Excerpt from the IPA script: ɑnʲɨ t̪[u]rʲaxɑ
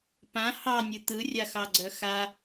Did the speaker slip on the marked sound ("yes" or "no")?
yes